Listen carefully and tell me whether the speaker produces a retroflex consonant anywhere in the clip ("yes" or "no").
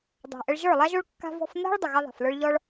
yes